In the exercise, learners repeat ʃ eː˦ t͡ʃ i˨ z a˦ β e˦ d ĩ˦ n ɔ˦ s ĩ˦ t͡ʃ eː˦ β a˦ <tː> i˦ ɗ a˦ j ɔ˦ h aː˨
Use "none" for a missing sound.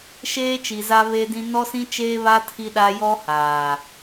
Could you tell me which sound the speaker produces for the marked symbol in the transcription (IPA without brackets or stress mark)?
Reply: tʰ